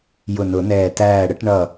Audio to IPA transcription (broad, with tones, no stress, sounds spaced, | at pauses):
j ʊ˧˩ n ʊ˨˩˦ n ɛː˧˩ t æː˧˩ ɽ ə˨˩˦ ʈ ɳ ʌ˧˩